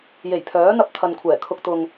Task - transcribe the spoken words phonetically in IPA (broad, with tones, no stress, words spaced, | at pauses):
je˨˩j pʰœː˨˥n̪ɐ˧p̚ t̪ʰɐ˨nkʷʰɛː˨˩kʰʊ˧k̚ t̪ʊ˨ŋ